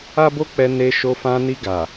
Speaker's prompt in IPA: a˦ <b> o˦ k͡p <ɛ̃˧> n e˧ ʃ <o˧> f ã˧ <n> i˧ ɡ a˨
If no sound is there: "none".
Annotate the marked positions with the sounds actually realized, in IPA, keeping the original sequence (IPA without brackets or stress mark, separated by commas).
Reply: b, ɛ˧, o˧, n